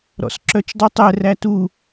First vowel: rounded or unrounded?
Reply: rounded